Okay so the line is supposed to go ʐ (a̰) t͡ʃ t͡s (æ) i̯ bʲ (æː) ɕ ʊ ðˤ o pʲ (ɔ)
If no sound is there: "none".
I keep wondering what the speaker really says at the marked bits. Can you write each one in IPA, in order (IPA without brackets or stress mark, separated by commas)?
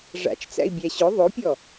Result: a̰, æ̰, æ, ɔ